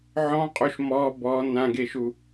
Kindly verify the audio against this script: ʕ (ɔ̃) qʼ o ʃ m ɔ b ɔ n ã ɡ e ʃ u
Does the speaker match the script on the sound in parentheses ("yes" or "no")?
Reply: yes